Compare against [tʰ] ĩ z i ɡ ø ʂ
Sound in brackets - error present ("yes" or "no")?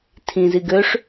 no